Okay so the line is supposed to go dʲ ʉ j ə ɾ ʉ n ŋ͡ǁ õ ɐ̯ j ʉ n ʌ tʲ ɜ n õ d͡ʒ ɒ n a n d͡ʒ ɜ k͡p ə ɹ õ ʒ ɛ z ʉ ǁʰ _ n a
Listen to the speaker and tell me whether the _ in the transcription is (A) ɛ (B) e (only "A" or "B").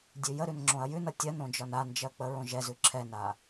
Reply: A